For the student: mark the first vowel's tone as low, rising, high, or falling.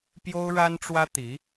high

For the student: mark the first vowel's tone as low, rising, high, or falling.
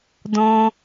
high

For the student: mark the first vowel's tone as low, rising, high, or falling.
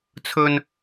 high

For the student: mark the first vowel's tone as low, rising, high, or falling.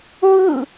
falling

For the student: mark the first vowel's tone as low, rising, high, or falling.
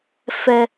high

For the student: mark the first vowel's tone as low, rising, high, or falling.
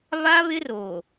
high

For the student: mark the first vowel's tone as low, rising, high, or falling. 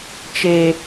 high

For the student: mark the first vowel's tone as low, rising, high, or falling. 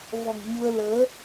low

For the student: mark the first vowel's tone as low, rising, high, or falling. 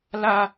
high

